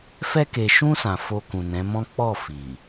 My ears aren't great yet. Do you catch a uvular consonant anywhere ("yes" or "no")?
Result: no